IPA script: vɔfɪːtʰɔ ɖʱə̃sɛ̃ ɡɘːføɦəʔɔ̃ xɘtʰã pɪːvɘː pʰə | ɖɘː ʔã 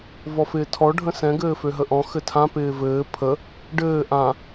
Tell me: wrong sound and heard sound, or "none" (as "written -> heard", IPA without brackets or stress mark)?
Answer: none